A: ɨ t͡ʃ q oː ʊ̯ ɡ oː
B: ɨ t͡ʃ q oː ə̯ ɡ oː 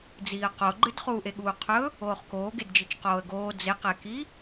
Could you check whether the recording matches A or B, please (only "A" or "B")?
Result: B